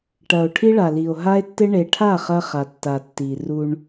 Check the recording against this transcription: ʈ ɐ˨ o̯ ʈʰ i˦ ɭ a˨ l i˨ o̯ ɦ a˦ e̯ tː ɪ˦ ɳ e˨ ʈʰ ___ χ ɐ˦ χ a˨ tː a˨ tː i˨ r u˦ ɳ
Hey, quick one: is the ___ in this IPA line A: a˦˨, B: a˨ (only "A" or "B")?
A